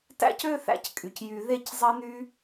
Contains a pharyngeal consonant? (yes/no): no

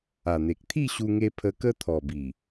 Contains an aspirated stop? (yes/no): yes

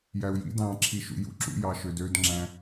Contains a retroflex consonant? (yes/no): no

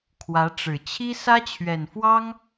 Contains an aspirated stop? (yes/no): yes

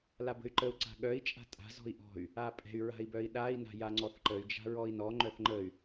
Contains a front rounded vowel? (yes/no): yes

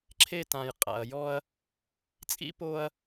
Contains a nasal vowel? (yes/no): yes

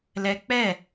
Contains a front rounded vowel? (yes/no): no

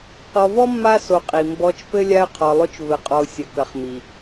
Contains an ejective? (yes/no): yes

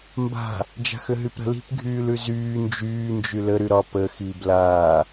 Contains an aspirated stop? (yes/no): no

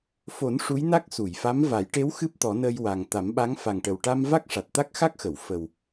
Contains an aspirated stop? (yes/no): no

